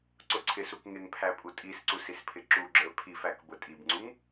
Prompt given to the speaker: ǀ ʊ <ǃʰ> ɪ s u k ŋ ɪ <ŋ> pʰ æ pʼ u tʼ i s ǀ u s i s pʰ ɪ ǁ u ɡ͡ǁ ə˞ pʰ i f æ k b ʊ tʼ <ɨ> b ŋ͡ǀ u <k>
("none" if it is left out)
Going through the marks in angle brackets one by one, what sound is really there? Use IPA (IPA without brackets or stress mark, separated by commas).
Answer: ǀʰ, ŋ, i, ŋ